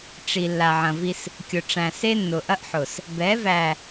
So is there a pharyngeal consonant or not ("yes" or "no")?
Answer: yes